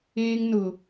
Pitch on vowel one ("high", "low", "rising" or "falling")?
high